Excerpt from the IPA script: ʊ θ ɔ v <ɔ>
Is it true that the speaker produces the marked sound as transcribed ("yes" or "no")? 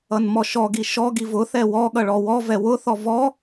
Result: yes